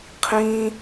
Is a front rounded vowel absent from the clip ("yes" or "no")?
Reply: yes